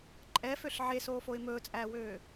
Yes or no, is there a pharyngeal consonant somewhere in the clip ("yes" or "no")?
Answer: yes